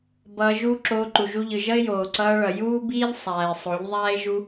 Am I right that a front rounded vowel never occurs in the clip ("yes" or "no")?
yes